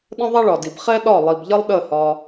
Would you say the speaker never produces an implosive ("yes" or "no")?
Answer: no